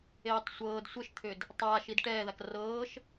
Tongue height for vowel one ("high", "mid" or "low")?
mid